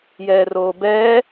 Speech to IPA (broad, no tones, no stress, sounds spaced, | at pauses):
j ɛː r oː b ɛː